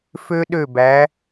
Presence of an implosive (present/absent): present